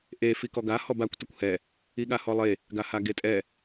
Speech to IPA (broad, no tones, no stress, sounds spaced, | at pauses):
ʔ e f i k ɔ ɡ a h ɔ b a kʷ t ə kʷ h ɛ | i ɠ a h ɔ lˠ e | ɡ a h a ɡ e tʼ ɛ